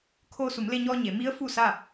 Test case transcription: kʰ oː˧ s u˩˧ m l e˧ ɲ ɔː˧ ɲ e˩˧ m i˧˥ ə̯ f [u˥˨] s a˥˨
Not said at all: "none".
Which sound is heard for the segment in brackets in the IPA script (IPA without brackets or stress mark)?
u˥˨